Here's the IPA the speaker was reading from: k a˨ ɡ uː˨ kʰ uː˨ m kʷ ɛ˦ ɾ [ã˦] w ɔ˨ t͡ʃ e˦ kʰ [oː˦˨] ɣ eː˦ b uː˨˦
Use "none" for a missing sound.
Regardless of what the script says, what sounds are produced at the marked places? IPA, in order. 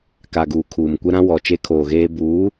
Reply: ã˦, oː˨

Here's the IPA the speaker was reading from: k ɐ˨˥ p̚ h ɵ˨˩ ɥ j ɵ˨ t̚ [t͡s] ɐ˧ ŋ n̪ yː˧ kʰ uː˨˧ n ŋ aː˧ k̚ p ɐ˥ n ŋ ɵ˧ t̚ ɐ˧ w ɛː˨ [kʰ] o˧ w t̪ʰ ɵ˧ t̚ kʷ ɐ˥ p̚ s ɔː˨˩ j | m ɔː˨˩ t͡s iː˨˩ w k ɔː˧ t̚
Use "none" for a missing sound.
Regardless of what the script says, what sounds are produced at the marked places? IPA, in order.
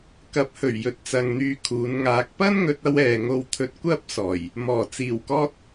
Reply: t͡s, ŋ

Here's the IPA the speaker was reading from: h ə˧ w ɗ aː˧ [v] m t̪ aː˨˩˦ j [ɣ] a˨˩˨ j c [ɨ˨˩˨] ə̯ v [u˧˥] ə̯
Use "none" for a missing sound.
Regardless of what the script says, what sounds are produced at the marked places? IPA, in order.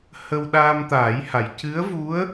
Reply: none, h, ɨ˧˥, u˧˥

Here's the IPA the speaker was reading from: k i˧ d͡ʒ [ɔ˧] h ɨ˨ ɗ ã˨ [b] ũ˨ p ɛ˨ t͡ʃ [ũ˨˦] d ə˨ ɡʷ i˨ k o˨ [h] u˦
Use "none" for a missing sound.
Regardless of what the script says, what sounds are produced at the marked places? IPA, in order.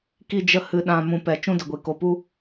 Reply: ə˧, m, ũ˦, p

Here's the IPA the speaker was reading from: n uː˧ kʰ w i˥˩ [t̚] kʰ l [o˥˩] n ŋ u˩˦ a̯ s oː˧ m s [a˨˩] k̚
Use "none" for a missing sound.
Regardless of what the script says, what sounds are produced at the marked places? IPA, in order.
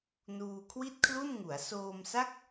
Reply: t̚, u˥˩, a˥˩

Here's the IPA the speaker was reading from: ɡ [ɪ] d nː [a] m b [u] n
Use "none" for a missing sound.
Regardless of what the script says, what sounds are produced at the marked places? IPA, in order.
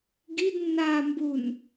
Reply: i, a, u

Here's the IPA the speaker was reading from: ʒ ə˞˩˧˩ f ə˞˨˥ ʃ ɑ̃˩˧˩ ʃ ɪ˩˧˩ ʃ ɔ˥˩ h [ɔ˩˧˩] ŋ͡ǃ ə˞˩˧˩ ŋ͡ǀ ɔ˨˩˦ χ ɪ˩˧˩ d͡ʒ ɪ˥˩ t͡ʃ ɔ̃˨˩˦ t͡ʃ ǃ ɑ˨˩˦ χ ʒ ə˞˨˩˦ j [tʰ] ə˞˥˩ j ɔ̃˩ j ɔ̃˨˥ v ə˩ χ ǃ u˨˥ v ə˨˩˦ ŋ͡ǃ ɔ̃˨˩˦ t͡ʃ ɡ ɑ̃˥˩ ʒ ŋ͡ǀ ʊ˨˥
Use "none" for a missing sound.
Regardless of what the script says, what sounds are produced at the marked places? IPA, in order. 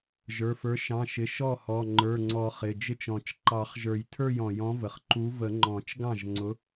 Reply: ɔ˩˧˩, tʰ

